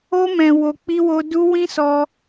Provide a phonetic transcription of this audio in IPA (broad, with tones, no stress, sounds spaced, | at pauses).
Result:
o˦ m ɛ̃˧ w o˧ k͡p i˦ w o˦ d u˦ w ĩ˦ s ɔ˧